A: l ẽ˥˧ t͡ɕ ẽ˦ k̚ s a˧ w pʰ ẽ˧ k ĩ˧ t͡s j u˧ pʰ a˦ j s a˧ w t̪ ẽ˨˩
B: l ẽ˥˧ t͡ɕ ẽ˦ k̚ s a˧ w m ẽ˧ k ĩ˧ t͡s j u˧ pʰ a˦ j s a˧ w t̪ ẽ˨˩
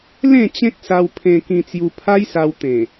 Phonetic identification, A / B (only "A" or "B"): A